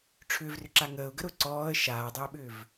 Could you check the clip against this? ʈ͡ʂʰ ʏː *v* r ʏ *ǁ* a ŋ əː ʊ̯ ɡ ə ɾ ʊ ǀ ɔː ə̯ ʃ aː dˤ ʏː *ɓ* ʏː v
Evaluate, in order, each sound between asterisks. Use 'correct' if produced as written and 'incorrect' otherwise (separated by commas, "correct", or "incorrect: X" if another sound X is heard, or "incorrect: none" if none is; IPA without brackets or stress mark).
correct, correct, correct